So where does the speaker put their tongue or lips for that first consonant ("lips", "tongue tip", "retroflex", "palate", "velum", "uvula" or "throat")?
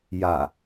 palate